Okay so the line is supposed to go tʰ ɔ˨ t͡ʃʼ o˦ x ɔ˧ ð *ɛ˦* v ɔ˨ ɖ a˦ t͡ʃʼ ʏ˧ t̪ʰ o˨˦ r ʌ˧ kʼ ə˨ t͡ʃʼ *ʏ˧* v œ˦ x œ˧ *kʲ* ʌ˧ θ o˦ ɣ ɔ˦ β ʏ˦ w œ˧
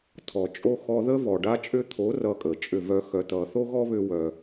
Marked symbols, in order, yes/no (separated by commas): no, no, no